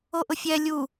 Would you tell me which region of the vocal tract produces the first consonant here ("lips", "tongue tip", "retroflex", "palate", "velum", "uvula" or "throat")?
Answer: throat